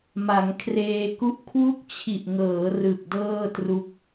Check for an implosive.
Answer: absent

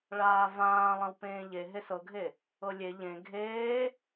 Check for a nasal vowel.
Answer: present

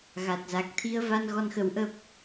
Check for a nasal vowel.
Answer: absent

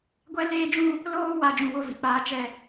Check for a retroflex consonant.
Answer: absent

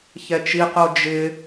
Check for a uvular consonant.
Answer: present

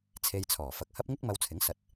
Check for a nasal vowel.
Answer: absent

